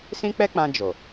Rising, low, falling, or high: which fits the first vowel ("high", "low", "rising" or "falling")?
high